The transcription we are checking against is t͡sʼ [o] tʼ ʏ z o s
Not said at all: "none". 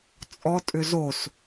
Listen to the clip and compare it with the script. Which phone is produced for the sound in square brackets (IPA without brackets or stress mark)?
ɔ